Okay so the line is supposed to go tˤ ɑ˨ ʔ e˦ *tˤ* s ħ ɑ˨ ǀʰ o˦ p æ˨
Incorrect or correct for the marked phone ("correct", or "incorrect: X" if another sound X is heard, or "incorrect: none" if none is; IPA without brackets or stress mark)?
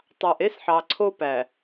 incorrect: none